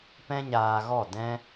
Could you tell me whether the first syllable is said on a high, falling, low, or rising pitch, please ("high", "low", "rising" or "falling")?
high